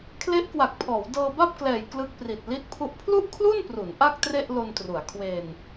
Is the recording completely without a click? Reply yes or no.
yes